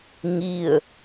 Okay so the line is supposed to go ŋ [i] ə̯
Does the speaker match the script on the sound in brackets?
yes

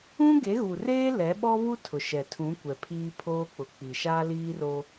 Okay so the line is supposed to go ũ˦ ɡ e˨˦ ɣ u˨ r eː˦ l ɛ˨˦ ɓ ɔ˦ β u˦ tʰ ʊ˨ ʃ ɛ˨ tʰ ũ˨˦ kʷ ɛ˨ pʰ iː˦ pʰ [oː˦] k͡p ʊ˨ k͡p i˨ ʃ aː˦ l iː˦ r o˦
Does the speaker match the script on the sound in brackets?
yes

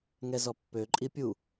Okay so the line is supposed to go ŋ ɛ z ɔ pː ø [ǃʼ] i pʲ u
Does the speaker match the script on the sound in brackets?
yes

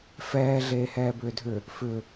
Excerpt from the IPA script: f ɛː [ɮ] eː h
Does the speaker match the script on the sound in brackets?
yes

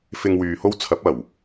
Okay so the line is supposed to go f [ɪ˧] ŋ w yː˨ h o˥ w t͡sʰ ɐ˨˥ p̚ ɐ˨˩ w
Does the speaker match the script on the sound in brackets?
yes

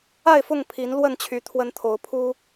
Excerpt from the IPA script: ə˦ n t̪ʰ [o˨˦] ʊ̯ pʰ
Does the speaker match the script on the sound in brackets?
yes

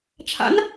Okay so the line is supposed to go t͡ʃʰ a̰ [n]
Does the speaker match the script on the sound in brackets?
yes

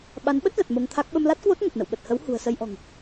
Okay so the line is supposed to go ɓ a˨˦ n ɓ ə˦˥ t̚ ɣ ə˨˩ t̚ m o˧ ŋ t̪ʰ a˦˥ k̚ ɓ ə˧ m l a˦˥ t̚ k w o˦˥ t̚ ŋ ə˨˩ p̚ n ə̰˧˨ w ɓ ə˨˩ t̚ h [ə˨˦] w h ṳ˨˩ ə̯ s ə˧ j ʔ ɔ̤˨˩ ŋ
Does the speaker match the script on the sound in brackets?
yes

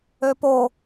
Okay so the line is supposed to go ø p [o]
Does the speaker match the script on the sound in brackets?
yes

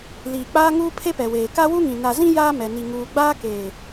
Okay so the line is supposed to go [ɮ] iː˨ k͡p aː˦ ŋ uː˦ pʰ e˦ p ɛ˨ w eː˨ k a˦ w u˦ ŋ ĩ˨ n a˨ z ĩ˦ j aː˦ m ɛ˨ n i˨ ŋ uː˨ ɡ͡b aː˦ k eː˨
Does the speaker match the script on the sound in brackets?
no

